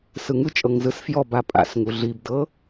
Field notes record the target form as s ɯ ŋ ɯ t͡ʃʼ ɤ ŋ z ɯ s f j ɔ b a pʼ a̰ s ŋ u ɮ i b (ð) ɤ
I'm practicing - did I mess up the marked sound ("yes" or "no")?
yes